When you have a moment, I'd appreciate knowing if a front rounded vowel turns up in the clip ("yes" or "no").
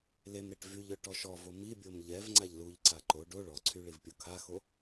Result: yes